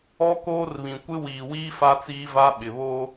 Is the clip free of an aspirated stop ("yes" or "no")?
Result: yes